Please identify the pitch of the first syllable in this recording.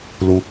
low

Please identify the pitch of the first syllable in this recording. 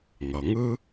low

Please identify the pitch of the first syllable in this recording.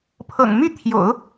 low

